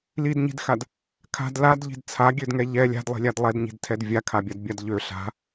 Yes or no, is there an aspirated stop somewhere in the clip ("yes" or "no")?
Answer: yes